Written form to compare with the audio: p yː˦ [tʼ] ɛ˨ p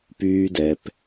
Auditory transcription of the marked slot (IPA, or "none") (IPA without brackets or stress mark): d